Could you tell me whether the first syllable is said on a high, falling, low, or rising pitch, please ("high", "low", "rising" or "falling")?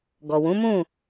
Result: low